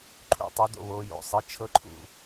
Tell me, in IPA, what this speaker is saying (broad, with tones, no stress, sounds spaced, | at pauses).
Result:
ǃʰ ṵ˧˩ tˤ i˩˧ d o̰˥˩ β o˩˧ j o̰˩˧ sˤ i˩˧ t͡ʃʰ ɤ˧˥ ǃʰ ṵ˥˩